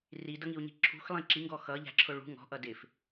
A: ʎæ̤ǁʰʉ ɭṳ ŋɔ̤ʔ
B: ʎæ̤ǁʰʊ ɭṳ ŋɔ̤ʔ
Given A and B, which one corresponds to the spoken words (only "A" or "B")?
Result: B